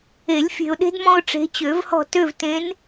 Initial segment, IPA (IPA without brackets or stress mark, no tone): e